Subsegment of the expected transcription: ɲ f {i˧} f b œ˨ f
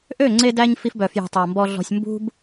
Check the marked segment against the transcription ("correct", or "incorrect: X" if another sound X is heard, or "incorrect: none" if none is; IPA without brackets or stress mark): correct